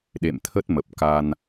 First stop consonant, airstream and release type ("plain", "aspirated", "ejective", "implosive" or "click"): implosive